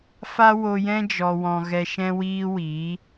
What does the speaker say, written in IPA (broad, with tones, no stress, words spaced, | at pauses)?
fa˦wo˧jɛ̃˦ d͡ʒɔ˧wɔ̃˧ ɣɛ˧ʃɛ̃˦ wiː˦wiː˨˦